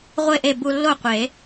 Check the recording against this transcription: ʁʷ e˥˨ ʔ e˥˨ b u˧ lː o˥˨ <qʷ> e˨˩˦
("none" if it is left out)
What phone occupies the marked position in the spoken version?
qʷ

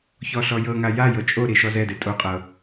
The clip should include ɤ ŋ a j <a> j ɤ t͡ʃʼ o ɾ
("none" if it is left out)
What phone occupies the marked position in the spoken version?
a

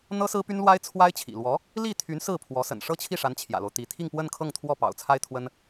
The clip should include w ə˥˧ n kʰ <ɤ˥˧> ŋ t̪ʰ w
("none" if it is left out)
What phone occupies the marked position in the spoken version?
ɤ˥˧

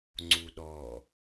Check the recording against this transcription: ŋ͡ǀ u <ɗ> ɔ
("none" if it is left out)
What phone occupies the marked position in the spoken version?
ɗ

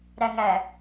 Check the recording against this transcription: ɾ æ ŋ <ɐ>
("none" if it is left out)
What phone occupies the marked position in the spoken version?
æ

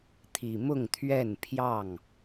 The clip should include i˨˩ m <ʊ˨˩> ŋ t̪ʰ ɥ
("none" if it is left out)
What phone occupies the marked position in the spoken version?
ʊ˥˨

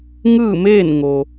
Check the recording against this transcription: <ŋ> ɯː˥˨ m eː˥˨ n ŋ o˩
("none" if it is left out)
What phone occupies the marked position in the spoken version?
ŋ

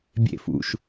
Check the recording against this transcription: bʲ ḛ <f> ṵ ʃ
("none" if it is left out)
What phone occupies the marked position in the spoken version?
f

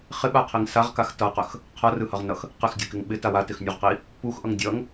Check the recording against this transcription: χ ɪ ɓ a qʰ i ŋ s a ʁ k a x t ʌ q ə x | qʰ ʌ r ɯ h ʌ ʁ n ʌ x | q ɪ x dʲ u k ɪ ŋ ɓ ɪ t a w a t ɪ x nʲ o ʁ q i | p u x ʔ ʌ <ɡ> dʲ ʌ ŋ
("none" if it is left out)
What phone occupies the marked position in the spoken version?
ŋ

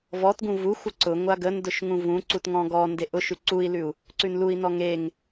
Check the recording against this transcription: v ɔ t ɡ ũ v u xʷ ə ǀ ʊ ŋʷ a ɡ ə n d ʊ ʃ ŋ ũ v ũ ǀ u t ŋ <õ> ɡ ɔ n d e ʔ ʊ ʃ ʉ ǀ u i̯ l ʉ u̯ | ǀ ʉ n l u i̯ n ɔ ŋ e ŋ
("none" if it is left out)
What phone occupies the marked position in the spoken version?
ɔ̃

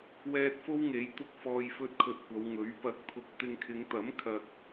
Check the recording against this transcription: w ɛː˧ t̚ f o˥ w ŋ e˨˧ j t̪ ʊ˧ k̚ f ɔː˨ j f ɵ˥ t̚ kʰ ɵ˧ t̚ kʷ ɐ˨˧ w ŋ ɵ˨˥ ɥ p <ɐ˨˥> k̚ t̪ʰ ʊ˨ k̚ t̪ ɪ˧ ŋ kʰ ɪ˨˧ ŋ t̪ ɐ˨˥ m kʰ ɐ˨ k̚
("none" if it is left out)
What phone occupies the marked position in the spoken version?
ɐ˨˥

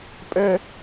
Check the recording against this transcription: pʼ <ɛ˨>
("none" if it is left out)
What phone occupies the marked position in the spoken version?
ɛ˦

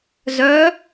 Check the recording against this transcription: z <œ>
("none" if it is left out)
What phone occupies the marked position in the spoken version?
œ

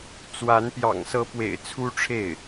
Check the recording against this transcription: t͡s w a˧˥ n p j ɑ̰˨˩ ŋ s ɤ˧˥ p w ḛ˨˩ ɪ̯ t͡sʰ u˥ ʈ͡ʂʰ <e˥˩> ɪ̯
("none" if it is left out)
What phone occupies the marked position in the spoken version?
e˥˩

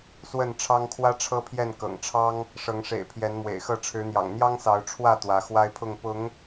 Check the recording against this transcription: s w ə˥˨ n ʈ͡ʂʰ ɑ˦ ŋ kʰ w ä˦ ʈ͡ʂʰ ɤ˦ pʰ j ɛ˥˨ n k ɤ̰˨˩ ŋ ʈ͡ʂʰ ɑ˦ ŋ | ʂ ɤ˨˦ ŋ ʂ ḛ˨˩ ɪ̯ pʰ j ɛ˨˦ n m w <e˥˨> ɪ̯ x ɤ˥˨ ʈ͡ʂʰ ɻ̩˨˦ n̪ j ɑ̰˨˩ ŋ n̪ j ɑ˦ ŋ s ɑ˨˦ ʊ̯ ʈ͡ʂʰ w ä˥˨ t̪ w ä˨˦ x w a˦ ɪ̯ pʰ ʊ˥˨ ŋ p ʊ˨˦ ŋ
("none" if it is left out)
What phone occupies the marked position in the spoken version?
ḛ˨˩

